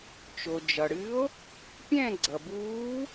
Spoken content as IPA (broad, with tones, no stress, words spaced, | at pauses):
t͡ʃo˩d͡ʒʌ˩ɽɨ˧˥o̯ | pʲɛ̃˦˨ ɡ͡ǀʌ˩buː˧˥